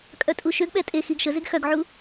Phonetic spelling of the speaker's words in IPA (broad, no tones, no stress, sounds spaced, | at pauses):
kʼ œ tʼ u ʃ ø ɡ ɓ ɛ tʼ e x i ɡ ʃ ə z e ɡ x œ ɡ ʕ u